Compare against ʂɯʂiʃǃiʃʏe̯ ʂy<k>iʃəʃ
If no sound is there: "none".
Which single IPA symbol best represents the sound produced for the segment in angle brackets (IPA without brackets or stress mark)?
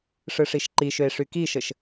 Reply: k